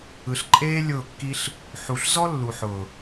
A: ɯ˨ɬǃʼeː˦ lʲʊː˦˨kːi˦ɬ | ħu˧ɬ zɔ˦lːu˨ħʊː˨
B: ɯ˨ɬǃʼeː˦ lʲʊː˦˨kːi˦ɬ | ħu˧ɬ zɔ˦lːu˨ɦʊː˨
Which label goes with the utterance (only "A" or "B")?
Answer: A